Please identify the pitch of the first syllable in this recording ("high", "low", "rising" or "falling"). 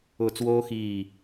falling